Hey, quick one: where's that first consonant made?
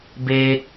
lips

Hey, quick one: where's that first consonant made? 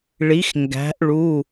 retroflex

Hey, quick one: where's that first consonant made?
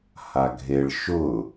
throat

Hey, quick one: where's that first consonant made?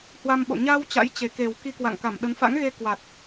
throat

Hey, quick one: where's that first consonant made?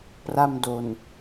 lips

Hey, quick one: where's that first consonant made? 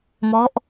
lips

